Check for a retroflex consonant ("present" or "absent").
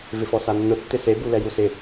absent